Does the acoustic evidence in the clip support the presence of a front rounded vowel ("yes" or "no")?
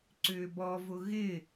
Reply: yes